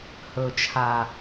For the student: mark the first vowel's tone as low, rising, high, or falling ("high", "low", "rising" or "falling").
low